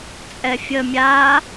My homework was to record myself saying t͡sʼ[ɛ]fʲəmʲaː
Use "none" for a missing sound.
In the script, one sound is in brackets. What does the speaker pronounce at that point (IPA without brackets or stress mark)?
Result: ɛ